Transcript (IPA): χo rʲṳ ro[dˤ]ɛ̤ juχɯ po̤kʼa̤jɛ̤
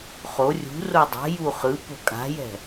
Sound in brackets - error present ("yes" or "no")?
no